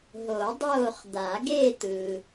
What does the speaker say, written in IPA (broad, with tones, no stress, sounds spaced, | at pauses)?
ɦ o˨˩˦ dˤ oː˦˨ χ d̪ a˨˩˦ ɡ e˦˨ t̪ ɯ˨